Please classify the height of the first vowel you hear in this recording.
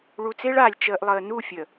high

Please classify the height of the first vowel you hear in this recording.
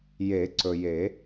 mid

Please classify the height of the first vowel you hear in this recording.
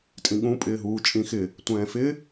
high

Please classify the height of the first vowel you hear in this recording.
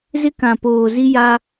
high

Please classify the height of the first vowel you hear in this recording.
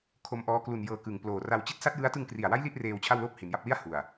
mid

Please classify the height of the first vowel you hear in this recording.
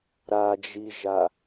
low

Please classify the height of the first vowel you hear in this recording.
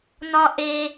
low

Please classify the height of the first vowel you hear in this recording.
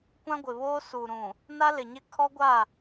low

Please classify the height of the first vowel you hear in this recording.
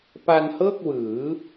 low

